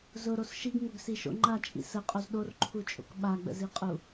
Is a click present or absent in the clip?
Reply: present